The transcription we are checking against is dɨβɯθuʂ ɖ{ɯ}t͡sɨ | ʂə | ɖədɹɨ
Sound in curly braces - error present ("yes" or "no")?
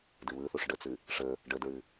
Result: yes